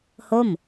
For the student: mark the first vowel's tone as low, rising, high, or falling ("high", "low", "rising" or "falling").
falling